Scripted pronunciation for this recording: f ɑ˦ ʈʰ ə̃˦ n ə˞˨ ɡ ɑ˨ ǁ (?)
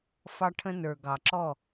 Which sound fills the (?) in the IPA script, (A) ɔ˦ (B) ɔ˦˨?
B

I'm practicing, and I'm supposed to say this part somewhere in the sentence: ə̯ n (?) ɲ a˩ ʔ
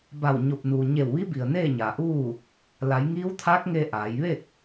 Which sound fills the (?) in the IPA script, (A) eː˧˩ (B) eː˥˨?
B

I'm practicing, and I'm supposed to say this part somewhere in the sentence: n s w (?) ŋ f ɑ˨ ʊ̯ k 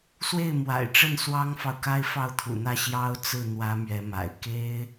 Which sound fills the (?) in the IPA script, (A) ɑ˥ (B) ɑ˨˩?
A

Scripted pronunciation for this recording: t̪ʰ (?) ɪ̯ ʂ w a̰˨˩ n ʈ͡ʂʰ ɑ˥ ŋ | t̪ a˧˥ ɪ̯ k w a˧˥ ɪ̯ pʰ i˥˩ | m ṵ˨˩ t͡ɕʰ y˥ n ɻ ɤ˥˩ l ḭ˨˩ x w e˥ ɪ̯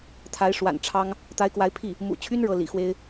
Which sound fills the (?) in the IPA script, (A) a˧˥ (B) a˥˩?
A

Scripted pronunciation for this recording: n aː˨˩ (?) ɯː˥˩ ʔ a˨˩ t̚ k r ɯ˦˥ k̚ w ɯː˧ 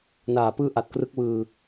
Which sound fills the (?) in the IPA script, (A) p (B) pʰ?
A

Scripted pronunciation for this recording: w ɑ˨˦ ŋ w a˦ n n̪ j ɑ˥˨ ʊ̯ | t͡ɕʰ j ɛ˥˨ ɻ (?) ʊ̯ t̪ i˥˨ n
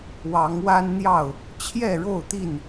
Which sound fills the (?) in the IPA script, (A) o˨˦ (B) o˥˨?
B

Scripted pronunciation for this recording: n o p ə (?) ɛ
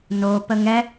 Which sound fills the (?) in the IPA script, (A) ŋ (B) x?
A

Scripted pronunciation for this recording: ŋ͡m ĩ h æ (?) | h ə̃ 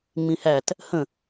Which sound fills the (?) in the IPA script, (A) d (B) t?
B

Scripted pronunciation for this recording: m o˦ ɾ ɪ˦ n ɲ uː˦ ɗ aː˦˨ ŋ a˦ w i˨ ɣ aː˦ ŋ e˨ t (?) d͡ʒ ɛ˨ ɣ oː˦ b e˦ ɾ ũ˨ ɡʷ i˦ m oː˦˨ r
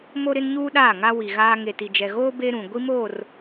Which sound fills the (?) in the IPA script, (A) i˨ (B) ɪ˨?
A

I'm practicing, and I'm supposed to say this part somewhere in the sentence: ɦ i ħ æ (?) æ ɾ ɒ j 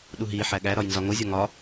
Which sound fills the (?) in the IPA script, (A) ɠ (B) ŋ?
A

